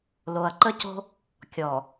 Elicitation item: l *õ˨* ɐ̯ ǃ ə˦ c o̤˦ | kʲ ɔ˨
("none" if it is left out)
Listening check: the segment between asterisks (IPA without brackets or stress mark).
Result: o˨